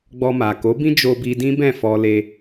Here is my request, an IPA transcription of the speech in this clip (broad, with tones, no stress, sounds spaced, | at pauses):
ɡ͡b ɔ˧ m a˨ k o˨˦ b ĩ˦ d͡ʒ o˧ b i˧ d ĩ˦ b ɛ̃˦˨ f ɔ˧ l e˧